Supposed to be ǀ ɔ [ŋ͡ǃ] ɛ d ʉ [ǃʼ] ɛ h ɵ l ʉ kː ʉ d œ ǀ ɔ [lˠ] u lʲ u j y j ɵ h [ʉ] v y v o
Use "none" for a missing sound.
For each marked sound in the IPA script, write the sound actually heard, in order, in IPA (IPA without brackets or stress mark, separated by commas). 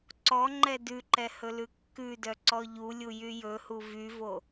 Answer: ŋ͡ǃ, ǃ, ʎ, u